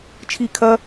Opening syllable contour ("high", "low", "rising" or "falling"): low